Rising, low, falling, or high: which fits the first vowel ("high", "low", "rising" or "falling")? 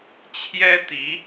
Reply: high